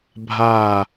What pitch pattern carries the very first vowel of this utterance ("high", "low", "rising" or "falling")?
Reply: falling